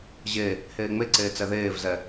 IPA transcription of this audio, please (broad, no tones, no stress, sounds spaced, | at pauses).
ʑ e | h eː ŋ͡m e ǀ eː t͡s ɛ ð eː v z ɛ